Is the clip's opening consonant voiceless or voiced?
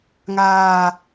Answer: voiced